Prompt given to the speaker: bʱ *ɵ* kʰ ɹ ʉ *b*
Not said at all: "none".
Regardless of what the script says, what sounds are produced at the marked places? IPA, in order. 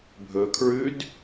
ɵ, d

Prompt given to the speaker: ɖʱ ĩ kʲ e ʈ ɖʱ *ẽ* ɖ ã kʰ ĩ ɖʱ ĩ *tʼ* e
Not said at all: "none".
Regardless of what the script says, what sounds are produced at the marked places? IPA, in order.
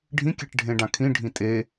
ẽ, tʼ

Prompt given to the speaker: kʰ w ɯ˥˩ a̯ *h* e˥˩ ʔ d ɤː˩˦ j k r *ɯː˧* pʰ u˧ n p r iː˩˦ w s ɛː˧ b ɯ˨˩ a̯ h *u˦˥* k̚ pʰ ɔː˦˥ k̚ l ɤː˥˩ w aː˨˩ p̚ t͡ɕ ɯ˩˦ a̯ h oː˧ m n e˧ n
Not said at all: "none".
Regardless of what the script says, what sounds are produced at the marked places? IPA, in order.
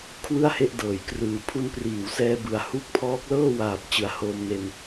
h, ɯː˨˩, u˦˥

